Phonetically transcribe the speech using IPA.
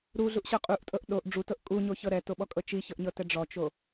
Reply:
ɾ u ɮ u ʔ ɕ ɤ qʼ u ʔ tʼ ɤ ʔ ɗ o ʔ ɖ͡ʐ u t ɤ ʔ kʼ u ɲ o ç ɤ ɾ ɛ t o ɓ ɔ kʼ ɤ t͡ʃ i ç ɤ ʔ ɲ ɤ t ɛ ɖ͡ʐ ɔ t͡ʃ o

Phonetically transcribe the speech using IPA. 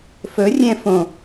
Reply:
f ɵ rʲ ɛ̃ f õ

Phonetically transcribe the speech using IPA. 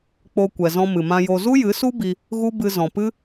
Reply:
k͡p o˧ kʷ ɛ˨ z ɔ̃˧ m ɨ˨ m ã˧ j o˧ z u˦ j ɨ˨˦ s u˦ b i˧ | ɣ u˦ b ɨ˧ z ɔ̃˨ p ɨ˦

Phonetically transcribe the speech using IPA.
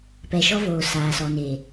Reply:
p ɛ˨ ʃ ɔ˦ v oː˨ s aː˨ s ɔ˨ n eː˨

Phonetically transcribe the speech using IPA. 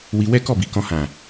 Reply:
w i˧ w ɛ˦ k ɔ˦˨ b i˨ k ɔ̃˧ h ã˨

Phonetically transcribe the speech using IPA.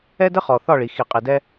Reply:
ɛ˦ d ə˦ χ ɔ˨ θ ɒ˦˨ ɭ i˨ x i˨ qʼ i˨ d ɛ˦

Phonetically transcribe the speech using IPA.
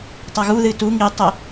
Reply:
tˤ a ɣ u ð ɨ t u ŋ i tˤ e

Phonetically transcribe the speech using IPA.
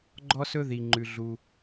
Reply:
ɡ͡ǃ ɔ˦ s ɵ˦ ð i˩ ŋ͡ǃ ʉ˩ ɮ u˩

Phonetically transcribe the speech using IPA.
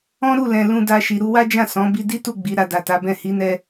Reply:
ɔ̃˦ ɾ u˦˨ l ɛ̃˨ l ũ˧ d a˧ ʃ i˨ ɾ u˧ w a˦ d͡ʒ ã˦˨ s ɔ̃˨˦ b i˧ d i˦ t u˦˨ ɡ͡b i˨˦ ɾ a˧ d a˨ t a˨˦ b ɛ̃˦˨ h i˨˦ n ɛ˧

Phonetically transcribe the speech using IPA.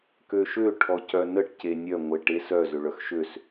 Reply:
k ø ʃ ø ʈʰ ɔ c œ n ə ʈ c e nʲ œ ŋʷ e ʈ e s œ z ø ɭ œ x ʃ ø s

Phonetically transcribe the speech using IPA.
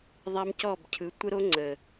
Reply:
ðˤ a˦ m c ɔ˦˨ b cʰ ɯ˨˦ tʷ ə˦ ɾ o˦ ŋ͡ǀ ə˨

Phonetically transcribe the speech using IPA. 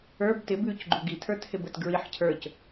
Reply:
ə˞ b t ɪ b ʉ c ɡ͡ǃ u ɡ i tʰ ə˞ t h ɪ b ə t ɡ ɹ i ħ cʰ ə˞ c

